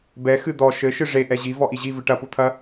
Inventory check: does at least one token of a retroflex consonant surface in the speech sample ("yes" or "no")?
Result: yes